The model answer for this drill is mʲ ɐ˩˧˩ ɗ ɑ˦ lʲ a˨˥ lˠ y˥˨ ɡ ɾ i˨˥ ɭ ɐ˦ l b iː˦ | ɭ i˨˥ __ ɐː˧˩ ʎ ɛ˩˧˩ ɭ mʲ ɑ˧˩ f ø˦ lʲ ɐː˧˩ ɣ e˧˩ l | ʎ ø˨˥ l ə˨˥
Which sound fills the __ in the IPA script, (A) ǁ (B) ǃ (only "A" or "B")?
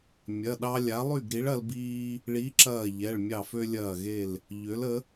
A